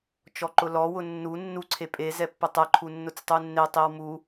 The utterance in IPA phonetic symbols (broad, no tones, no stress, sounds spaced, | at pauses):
t͡ʃ ɔ ǃ ʊ l ɔ w ʊ nː u nː u ǀʰ e pʼ e z ɛ pː ʊ tˤ ɛ ǃʰ u nː ʊ t͡s tˤ u nː e tˤ i w m u